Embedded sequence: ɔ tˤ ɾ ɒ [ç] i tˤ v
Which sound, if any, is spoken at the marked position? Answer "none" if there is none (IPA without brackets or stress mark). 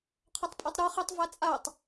χ